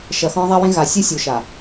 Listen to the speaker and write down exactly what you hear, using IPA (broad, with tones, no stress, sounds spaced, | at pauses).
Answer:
ʃ ɐ˨ x ɔ̃˦ ðˤ a˦ w ẽ˦ ɣ a˨ sʲ ɨ˦ sʲ u˨ ʃ a˨